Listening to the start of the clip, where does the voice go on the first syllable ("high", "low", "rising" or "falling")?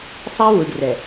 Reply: high